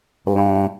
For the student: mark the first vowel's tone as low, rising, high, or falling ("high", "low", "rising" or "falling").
high